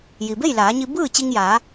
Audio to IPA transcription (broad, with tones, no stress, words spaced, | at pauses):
ji˩be˥˨jlaː˩˧ɲi˧ bɯː˥˨t͡ɕi˧ŋjaː˩˧